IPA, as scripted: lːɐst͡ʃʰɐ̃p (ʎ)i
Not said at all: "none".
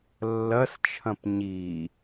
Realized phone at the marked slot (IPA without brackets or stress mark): ɲ